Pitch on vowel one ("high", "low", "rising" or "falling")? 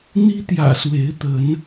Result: high